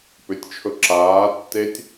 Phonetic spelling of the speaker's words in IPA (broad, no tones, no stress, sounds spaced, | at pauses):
p ʏ tʲ t͡ʃʰ ɵ ǁ aː tː e tʲ